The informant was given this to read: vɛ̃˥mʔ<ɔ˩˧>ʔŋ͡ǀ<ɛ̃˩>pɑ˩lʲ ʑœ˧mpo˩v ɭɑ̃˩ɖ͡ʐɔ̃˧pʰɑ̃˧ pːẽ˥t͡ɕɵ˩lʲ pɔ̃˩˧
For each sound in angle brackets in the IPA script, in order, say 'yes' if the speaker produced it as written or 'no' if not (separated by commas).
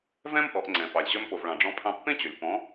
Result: yes, yes